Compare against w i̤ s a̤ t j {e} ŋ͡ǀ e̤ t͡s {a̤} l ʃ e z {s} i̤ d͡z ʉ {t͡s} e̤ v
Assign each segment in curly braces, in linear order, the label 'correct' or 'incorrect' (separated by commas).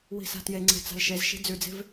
correct, correct, incorrect, incorrect